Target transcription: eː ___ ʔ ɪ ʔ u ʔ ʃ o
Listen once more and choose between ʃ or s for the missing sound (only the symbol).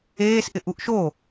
s